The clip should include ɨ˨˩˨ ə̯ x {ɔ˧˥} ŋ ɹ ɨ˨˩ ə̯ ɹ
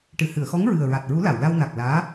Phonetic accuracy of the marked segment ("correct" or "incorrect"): correct